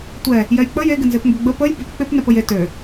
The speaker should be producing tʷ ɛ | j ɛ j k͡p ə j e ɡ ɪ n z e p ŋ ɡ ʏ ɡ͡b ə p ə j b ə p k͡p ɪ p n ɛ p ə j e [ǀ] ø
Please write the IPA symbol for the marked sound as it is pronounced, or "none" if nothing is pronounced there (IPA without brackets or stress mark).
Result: t